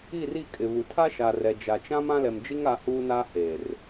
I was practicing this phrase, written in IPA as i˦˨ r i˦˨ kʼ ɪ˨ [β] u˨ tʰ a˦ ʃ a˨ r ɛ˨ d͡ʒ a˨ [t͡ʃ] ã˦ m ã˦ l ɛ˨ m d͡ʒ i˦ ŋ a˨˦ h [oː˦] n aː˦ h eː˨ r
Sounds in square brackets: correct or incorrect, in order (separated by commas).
correct, correct, incorrect